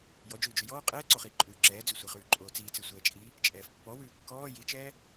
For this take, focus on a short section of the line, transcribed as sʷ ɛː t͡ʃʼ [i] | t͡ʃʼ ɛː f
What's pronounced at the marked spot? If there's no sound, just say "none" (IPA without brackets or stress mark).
i